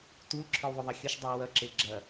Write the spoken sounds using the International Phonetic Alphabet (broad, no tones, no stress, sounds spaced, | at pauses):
t u l ǁʰ ə˞ w ðˤ o ðˤ ɐ xʲ ʌ ʃ dˤ ʌ w ɐ ǁ e ɡ͡ǁ ɐ